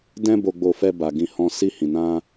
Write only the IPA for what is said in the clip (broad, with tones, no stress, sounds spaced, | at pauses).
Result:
d ɛ̃˦ b o˧ ɡ͡b o˧ f ɛ˧ b a˨ ɡ ĩ˧ h ɔ̃˧ s i˧ h ĩ˨ n ã˧